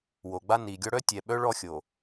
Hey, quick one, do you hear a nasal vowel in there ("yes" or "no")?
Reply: no